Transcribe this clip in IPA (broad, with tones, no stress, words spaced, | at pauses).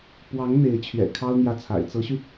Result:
pwɑ˧˥ŋ n̪e˧˥ɪ̯t͡ɕʰɥɛ̰˨˩kʰɑ˥ʊ̯ n̪jä˥˩t͡sʰa̰˨˩ɪ̯ t͡sɤ˧˥ɕy˧